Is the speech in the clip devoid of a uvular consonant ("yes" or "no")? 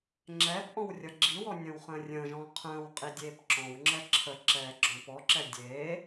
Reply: no